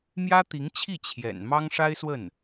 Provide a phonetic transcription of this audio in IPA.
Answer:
mjä˥t̪i˧˥ŋt͡ɕʰi˥˩ t͡ɕʰjɛ̰˨˩n mɑ˥ŋʂa˥ɪ̯swə˥˩n

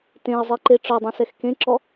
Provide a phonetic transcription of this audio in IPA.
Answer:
tẽə̯zˤiǃe ʈ͡ʂɔdˤĩsɛx kẽǁɔ

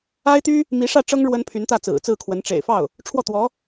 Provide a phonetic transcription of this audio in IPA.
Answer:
a˥ɪ̯t̪y˥ | mi˧˥ʂä˥˩ʈ͡ʂɤ˥ŋ ɻwə˥npʰy˧˥nt̪ä˥˩ t͡sɹ̩˨˩t͡sɹ̩˥˩kʰwə˧˥n ʈ͡ʂḛ˨˩ɪ̯fɑ˥˩ʊ̯ | ʈ͡ʂʰwɔ˥˩ t̪wɔ˧˥

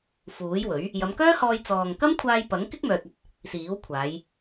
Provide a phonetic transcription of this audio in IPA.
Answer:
fuː˨˥jwɵ˨˥ɥ | jɐ˨˧mkœː˥hɔː˧j t͡sɔː˨ŋkɐ˥mkʷʰaː˧j pɐ˨˥ŋkɪ˥k̚ mœː˧t̚ɐ˥t̚ | siː˨˥wkʷʰaː˨˧j

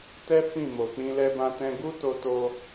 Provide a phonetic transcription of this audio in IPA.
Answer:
tɛ˦ fĩ˦˨mo˨k͡pĩ˧ lɛ˧bã˧tɛ̃˧ ɡu˦to˧to˧

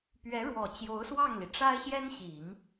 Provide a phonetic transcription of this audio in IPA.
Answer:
pɥɛ˧˥ɻwɔ˨˩ t͡ɕjo˧˥ʊ̯swɑ˥˩ŋli˩ ʈ͡ʂa˥ɪ̯ɕjɛ˥nɕi˨˩˦ŋ

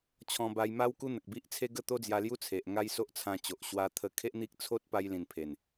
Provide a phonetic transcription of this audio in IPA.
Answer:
t͡ɕʰɔ̃˧ba˧jma˦w ku˦n̪ə˨k̚bi˦ʔ t͡sʰe˦ɡə˥˧t̪o˦d͡zja˧ lju˦t͡sʰe˨ʔ ŋa˦jso˦ʔt͡sʰã˧ t͡ɕo˨ʔɕwa˧ t̪ʰə˧kʰe˦ʔn̪i˦k̚ t͡sʰo˦t̚pa˧j lĩ˨˩npʰe˨˩n

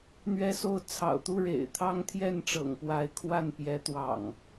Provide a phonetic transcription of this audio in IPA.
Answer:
n̪ɥɛ˨˦so˨˦ʊ̯ t͡sʰɑ̰˨˩ʊ̯t̪u˥˨ɻḛ˨˩ɪ̯t̪ʰɑ˦ŋ t̪ʰjɛ˥˨nʈ͡ʂɤ̰˨˩ŋpwa˨˦ɪ̯kʰwa˥˨n pjɛ˨˦t̪wɑ̰˨˩ŋ

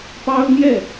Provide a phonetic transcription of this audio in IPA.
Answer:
pɑ˥ʊ̯n̪jɛ˥˩

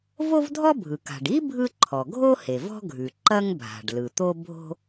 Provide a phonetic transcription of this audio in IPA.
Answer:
vo˥vdʱɔ˥ bʱɯ˩ka̤˩ɖi˥ bʱɯ˥ǃʰɔ˩ ɡʱo˥ he˩vɔ̤˥ɡʱʉ˩ ǃɐ˥ŋbʱa̤˩ɖlɯ˩ t̪o˥bʱo̤˥

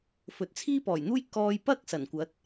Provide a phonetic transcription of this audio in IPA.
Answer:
fɵ˨t̚t͡sʰiː˥pɔː˨˩j n̪uː˥j kɔː˧j pɐ˥k̚ sɐ˨˩nkʷɐ˨˥t̚

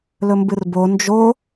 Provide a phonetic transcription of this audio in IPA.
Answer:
lɵmbɨrbo nd͡ʒo

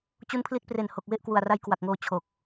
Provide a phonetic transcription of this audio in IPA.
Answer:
t͡ɕu˦˥npʰli˦˥t̚pre˨˩nho˨˩k̚ we˥˩ʔkwu˨˩a̯ra˦˥j kwa˨˩k̚ŋoː˧ t͡ɕʰo˨˩k̚

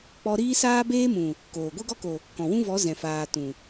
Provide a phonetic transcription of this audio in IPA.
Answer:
k͡pɔ˧ ɾiː˦saː˦beː˦mũ˨ | koː˨ ɡʷe˦ɡɔ˦ko˨ | kɔ̃˨wũ˦vɔ˨˦ zɛ̃˨faː˨ tũ˨

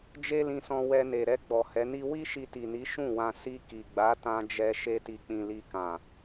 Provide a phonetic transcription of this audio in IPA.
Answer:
d͡ʒe˦lĩ˧sɔ̃˧ wɛ˧ne˨ɾɛ˧ ɡ͡bɔ˨hɛ˨˦ni˦ wi˦ʃi˧ti˨ni˨˦ ʃũ˦˨wã˧ si˧ ki˨ɡ͡ba˨˦tã˧d͡ʒɛ˧ ʃe˧ti˨k͡pĩ˨ li˧kã˨

